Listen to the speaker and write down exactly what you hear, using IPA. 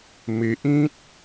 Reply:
m e˨ ʔ ĩ˦ t̚

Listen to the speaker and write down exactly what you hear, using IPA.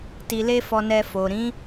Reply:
t i˧ l e˦ f ɔ˧ n ɛ˧ f o˨ ɾ ĩ˨˦

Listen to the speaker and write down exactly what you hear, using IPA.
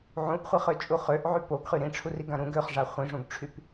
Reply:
ʕ ũ ʔ χʷ e χ ø t͡ʃʼ u χ ø ʔ ʕ y p o ɡ χ y ɾ ĩ ʈ͡ʂʰ u r i ɡ ã ɾ ũ ɡ ø χ ʐ a χʷ ĩ ʐ ũ ɡ ʈ͡ʂʰ y p

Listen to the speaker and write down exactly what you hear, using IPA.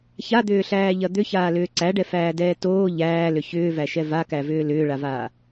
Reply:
ç a d̪ ʏː ɬ æː ʎ ɐ d̪ ʏ ç aː l ʏː ǀ æ ɖ ɛ f æː d ɛː t oː ʎ æː l ʏ ç ʏː v æ ʃ ɛ v a k æ v ʏː l ʏː ɭ a v aː

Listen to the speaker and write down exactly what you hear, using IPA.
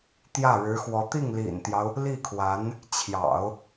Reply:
t̪ j ä˥˩ ɻ ɻ̩˧˥ x w ɔ˧˥ t̪ i˥˩ ŋ l ḭ˨˩ n t̪ j ɑ˦ ʊ̯ | l i˥˩ kʰ w a˧˥ n | t͡ɕʰ j ɑ̰˨˩˦ ʊ̯

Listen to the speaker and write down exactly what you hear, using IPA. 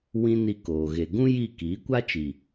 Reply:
w ĩ˦ n i˧ k oː˨ ɣ e˨ ɡ ũ˦ j i˦˨ k iː˨˦ kʷ a˦ t͡ʃ i˨

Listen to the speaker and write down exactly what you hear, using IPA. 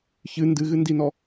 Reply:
ç ɨ n d ɨ ɣ ɨ n d i n ɔ

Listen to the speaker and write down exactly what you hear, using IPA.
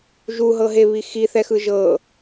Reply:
ʒ u ɦ ɤ ɦ e β i x i θ ɛ x ɯ ʒ ɤ

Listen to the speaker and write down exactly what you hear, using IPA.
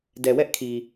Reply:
d ɛ˨ w ɛ˦ ʔ kʰ i˨

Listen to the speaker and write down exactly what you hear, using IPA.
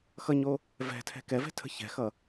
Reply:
x ʌ ɲ o | v ɛ̤ tʰ ɛ̤ k ɛ v ɛ̤ tʰ ə̤ ç ɛ̤ x ʌ

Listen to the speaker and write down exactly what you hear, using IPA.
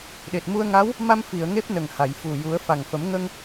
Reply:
ɗ e˨˩ t̚ m u˧ ə̯ ŋ a˧˥ w | m a˧ m f i˨˩˨ ə̯ ŋ e˦˥ p̚ n ə˨˩ ŋ h a˨˩˨ j f u˨˩ j u˨˩˦ ə̯ f a˨˩ ŋ f ə˨˩˦ m ŋ ə˧ ŋ

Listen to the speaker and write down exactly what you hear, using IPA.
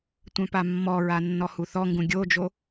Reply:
tʷ œ̃ p a mː ɔ ɹ a nː ɔ h u θ ɔ ŋ ɡ ũ ɡʲ o d͡ʒ o

